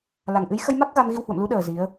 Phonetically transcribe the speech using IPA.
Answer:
la˨˩ŋʔɨ˨˦j xə˧jma˦˥k̚ ɣa˧mɣi˧whwə̰˧˨mlu˨˦ ɗəː˨˩ zi˨˦ə̯

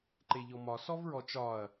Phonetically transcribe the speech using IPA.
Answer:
ǃeʎɔmɒ sɔvɹɔt͡ʃɒɐ̯

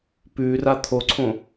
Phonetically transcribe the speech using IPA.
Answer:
pʉra t̪ʰoǀʰõ

